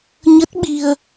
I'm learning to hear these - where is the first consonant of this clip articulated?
palate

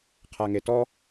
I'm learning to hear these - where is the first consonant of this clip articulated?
uvula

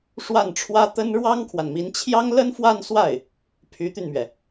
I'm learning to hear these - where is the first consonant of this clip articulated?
retroflex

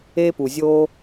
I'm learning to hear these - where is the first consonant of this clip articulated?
lips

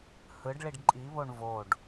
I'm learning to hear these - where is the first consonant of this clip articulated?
throat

